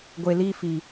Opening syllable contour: low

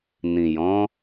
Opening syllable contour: low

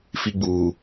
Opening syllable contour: high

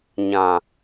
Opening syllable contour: low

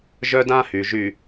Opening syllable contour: high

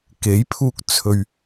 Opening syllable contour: rising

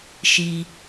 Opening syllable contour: high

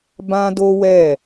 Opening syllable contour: high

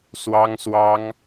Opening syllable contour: high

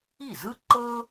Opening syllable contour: falling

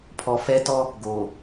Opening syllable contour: low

